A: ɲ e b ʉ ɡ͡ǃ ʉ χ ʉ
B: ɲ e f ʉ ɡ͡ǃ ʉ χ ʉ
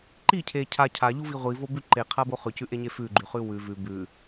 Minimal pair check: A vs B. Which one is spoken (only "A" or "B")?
B